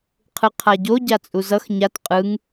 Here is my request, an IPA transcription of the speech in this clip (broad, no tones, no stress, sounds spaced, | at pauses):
qʰ ɯ qʰ a ɟ o ɟ a t͡sʼ u z ʌ x ɲ a t qʼ ɯ ŋ